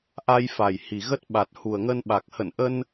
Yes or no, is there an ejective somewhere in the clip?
no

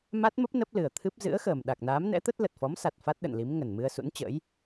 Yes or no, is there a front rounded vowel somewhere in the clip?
no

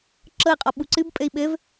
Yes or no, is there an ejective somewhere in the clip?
yes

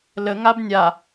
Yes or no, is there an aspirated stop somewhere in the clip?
no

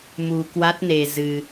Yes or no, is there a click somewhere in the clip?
no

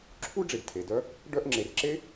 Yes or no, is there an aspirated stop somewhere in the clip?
yes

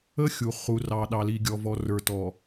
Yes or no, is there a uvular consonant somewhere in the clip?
yes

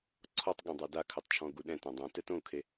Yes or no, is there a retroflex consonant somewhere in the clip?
no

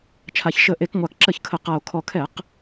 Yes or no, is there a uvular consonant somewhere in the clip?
yes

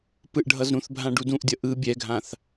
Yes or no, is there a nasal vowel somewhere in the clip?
yes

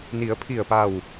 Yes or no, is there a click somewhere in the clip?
no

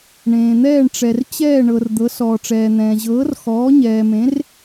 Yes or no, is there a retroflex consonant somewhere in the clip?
yes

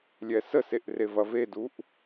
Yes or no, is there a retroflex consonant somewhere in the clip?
no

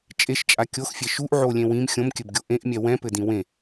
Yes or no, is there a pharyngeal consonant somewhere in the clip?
yes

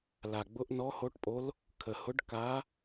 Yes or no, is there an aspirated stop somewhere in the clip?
yes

